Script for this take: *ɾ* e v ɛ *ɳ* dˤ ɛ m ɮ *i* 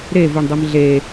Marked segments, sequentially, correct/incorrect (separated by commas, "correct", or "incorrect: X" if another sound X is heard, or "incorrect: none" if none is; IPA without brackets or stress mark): correct, correct, incorrect: e